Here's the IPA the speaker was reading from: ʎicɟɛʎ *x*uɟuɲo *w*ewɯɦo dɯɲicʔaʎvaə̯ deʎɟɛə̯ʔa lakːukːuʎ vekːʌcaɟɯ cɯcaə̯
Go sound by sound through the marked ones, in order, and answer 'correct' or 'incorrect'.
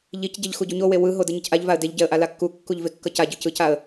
correct, correct

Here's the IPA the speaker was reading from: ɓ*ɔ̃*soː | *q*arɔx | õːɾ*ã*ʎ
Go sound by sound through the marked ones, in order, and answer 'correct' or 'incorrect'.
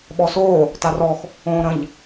incorrect, incorrect, incorrect

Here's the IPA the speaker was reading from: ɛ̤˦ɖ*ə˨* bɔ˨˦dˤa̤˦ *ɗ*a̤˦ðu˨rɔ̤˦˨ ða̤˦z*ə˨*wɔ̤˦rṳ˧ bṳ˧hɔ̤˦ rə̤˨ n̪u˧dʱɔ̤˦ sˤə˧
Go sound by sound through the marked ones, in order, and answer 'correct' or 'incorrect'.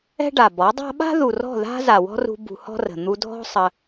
incorrect, incorrect, incorrect

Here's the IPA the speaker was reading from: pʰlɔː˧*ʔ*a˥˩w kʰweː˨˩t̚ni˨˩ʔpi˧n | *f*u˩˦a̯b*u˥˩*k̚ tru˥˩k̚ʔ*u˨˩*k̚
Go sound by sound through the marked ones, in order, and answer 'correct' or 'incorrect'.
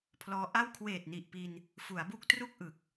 correct, correct, correct, incorrect

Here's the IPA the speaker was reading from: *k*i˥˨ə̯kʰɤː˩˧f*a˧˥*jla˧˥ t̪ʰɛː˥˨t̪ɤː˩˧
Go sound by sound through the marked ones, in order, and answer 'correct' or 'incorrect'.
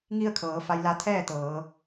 incorrect, incorrect

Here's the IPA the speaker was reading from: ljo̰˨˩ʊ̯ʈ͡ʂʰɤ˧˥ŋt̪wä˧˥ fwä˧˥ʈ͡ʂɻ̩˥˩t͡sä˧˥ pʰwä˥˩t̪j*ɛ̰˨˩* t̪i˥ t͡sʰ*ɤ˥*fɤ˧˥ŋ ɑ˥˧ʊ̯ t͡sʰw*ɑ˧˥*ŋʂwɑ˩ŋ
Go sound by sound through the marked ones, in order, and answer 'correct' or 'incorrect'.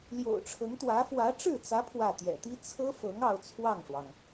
correct, correct, incorrect

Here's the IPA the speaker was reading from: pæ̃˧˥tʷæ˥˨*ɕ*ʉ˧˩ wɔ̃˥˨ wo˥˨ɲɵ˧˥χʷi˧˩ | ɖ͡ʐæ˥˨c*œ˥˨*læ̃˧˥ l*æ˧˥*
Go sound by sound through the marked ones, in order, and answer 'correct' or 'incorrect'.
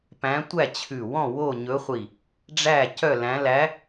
incorrect, correct, correct

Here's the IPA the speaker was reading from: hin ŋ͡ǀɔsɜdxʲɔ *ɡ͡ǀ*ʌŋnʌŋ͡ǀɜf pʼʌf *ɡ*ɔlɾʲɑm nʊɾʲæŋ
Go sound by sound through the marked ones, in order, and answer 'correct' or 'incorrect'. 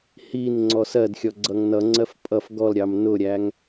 correct, correct

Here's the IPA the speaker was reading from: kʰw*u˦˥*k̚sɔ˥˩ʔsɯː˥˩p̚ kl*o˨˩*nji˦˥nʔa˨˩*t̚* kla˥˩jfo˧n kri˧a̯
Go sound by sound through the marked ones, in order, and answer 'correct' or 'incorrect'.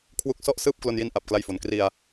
correct, incorrect, incorrect

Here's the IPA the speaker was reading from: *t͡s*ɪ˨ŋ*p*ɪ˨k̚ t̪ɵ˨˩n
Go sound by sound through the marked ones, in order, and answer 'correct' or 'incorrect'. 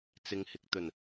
correct, incorrect

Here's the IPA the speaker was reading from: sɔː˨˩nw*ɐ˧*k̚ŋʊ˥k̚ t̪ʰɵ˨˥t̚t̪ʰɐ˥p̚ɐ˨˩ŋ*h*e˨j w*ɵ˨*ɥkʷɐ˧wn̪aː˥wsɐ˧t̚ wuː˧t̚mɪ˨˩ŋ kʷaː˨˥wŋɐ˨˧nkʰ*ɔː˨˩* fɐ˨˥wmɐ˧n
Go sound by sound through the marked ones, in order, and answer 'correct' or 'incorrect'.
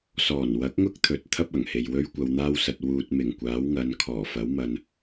incorrect, correct, incorrect, correct

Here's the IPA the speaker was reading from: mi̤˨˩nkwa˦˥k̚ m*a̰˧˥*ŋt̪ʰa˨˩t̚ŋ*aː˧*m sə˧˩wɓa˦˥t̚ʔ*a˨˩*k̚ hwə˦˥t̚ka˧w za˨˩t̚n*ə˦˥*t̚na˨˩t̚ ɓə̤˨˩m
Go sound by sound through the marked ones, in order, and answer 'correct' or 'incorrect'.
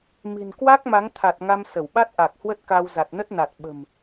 incorrect, incorrect, correct, correct

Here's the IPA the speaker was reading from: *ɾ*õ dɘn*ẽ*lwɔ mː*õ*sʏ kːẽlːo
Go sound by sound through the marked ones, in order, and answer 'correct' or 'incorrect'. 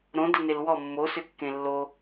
correct, incorrect, incorrect

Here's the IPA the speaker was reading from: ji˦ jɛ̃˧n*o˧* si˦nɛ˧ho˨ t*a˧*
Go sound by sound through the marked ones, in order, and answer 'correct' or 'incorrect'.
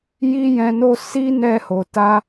incorrect, correct

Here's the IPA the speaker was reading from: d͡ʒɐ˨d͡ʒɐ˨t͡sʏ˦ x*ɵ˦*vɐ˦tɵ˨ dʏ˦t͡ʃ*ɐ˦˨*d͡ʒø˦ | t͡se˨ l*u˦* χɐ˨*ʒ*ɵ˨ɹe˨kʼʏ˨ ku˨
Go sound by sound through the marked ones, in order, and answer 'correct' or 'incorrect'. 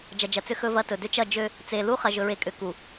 correct, correct, correct, correct

